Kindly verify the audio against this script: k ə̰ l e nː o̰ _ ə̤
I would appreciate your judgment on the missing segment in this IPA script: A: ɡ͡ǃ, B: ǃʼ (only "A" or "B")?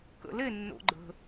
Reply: A